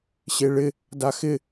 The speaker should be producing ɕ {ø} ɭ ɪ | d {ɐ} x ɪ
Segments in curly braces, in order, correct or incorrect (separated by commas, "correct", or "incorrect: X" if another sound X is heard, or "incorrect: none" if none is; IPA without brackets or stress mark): incorrect: e, incorrect: a